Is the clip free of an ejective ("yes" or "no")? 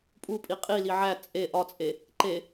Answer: no